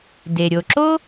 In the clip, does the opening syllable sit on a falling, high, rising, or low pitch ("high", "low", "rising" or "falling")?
low